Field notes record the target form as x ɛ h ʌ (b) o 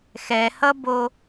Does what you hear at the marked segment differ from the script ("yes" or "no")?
no